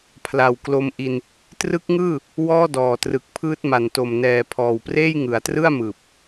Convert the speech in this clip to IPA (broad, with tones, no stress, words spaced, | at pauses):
pʰla˨˩wklo˧mʔi˧n | trɯ˦˥k̚ŋɯː˥˩ | wɔː˥˩dɔː˨˩trɯ˨˩k̚pʰɯː˦˥t̚ ma˨˩nto˨˩mnɛː˨˩ pʰɔː˨˩wpreː˥˩j ŋɯ˩˦a̯trɯ˥˩a̯mɯː˨˩p̚